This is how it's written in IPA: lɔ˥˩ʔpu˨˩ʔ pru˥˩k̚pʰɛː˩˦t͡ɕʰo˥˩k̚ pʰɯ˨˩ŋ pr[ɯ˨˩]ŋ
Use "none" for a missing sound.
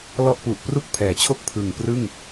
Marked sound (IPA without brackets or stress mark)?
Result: ɯ˥˩